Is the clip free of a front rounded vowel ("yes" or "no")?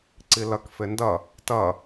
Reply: yes